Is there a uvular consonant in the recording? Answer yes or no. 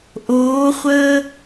yes